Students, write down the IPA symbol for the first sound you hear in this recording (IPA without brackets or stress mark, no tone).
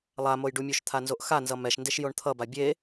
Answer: lˠ